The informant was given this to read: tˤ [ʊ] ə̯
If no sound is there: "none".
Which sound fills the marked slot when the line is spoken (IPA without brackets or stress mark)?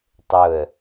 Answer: ʊ